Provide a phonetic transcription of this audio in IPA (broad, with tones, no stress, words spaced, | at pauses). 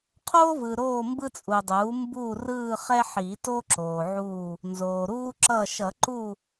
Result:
qʰoː˦vɯ˨ ɾoː˦˨mbɯ˦t͡sʼu˨dˤuː˩˥ mbuː˦˨ rɯː˦˨χɛ˦ħi˨˩˦to˦ ǁoː˨ʕu˦˨ | nzoː˨ɾuː˦ǁʌ˦˨ ʃʌ˨˩˦ǃu˦˨